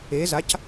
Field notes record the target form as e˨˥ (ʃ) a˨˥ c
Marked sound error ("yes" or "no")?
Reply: yes